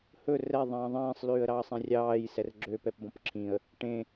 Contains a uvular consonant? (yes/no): no